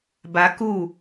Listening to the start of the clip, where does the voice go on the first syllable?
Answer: high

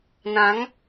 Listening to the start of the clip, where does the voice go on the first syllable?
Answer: rising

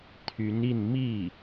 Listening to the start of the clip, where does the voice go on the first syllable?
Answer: rising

